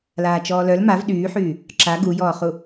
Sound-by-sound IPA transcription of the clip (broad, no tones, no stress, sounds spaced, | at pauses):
l aː t͡ʃ ɔː l œ l m a v ɗ yː ħ yː | ǁ a ɡ u j ɔː χ u